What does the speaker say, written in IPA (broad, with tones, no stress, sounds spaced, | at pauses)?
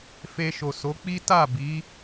f e˧ ʃ o˨ s o˨˦ k͡p i˦ t a˦˨ b i˨˦